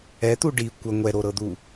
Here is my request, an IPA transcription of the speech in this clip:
ɛ t̪ u ɖ i kʷ ə ŋʷ ɛ ɾ o ɾ ɤ d̪ u

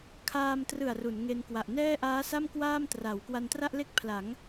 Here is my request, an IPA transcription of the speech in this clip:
kʰ aː˧ m t r ɯ˨˩ a̯ r u˩˦ n ŋ e˧ n k w a˨˩ ʔ n ɛː˥˩ ʔ aː˦˥ s a˥˩ m k w aː˥˩ m t r a˩˦ w k w a˧ n t r a˥˩ ʔ l e˥˩ k̚ pʰ l a˩˦ ŋ

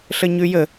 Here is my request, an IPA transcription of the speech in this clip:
ɬ ə ɲ ʉ j ə

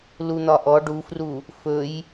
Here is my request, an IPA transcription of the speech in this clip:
l u n̪ ɒ ʔ ɔ ɖ u f r u | f ɵ j

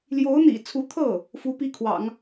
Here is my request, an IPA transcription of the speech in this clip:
l j o˧˥ ʊ̯ n̪ ḭ˨˩ t͡sʰ u˧˥ t̪ʰ ɤ˥˩ | f u˧˥ p i˥ kʰ w ɑ̰˨˩˦ ŋ

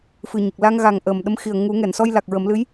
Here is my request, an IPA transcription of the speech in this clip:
f ɨ˨˩ ɲ ə˨˩ k̚ l a˧ ŋ ɣ a˨˩ ŋ ʔ əː˨˩ m ɗ ə˧˥ m x i˨˩ ə̯ ŋ u˨˩˦ ŋ ɛ˨˩˨ n s ɔ˧ j l a˨˩ k̚ ɹ ə˨˩˦ m l ɨ˧˥ j

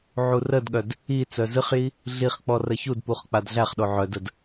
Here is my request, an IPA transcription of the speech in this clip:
ʕ u r ə d ɠ œ d | i t͡s œ z ɨ χ j i | ɮ i χ k͡p ɔ r ə ç u d p u χ k͡p a d ɮ æ χ ɗ o ʕ œ d ə d

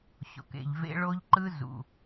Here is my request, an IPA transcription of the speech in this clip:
ɕ o̰˨ k ḛ˨ ʎ v ḛ˦ ɭ o˦ ʎ ǃ ɯ˦ z ṵ˨

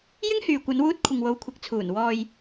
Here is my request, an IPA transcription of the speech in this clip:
j ɪ˥ ŋ h yː˨ kʷ ɐ˨˧ n w uː˧ t̚ kʷʰ ɪ˨ ŋ w o˨˧ w kʷʰ ɪ˨˥ k̚ t͡sʰ uː˨˩ n w ɔː˨ j

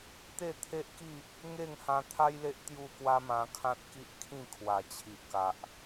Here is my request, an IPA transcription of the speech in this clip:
t̪ e˥˧ t̪ʰ e˦ ʔ k i˥˧ | ŋ e˥˧ ŋ h ã˧ t̪ʰ a˦ j l e˦ ʔ t̪ j u˥˧ k w a˦ m ã˧ kʰ ã˦ t̚ k i˦ ʔ kʰ ĩ˥˧ kʰ w a˨˩ t͡ɕʰ i˨ ʔ k a˨ ʔ

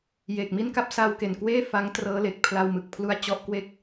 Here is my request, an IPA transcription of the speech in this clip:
j eː˨˩ k̚ m i˥˩ n k a˥˩ p̚ s a˧ w k e˨˩ n k w eː˥˩ f a˦˥ ŋ t r ɤː˦˥ l e˨˩ k̚ pʰ l a˧ w m ɯ˨˩ k̚ pʰ l u˦˥ a̯ t͡ɕ ɔ˦˥ ʔ k w e˥˩ k̚

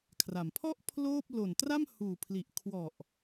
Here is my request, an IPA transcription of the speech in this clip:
kʰ r a˩˦ m pʰ ɔ˥˩ ʔ pʰ l oː˥˩ p̚ l o˨˩ n t r a˥˩ m h uː˨˩ pʰ l i˨˩ ʔ kʰ w ɔ˨˩ ʔ

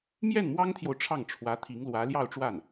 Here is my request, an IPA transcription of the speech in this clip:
m j ɛ˥˩ n m w ɑ˥ ŋ t̪ʰ j o˨ ʊ̯ ʈ͡ʂʰ ɑ˥˩ ŋ ʈ͡ʂʰ w ä˧˥ t̪ʰ i˧˥ ŋ l w ä˧˥ l j ɑ˥˧ ʊ̯ ʈ͡ʂ w a˥˩ n

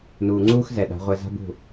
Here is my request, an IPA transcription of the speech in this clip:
n uː˨ ŋ͡ǀ uː˦ x z ɛ˨ ɗ a̤˨˦ ʁʷ ɛ˧ z a̤˦ b ṳ˦˨

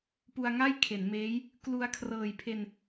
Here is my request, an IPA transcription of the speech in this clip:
p u˧ a̯ ŋ a˥˩ j kʰ e˩˦ n m eː˦˥ j | k l u˧ a̯ kʰ r ɤː˨˩ j pʰ e˧ n

